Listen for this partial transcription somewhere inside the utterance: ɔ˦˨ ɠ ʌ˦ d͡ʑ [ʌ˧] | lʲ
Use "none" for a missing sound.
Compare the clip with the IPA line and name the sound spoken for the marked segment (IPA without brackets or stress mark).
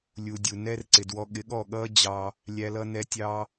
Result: ɑ˧